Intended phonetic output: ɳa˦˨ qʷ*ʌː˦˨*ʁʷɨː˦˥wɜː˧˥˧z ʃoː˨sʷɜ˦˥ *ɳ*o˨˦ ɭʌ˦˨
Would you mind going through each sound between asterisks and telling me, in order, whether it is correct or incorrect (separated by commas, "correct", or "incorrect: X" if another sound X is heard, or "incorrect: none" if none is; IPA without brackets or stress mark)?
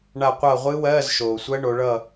correct, correct